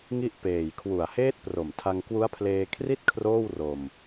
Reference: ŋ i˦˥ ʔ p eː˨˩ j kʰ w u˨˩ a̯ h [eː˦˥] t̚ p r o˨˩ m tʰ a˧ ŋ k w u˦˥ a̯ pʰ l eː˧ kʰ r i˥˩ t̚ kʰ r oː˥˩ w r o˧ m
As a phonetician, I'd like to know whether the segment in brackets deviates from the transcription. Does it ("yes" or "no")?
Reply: no